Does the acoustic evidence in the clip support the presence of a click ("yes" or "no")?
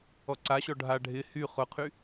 yes